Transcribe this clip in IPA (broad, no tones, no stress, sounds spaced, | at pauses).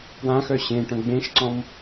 p w ã x œ ɕ ẽ ʈ œ̃ ɡ͡b ẽ ʃ ǀ ɔ̃ m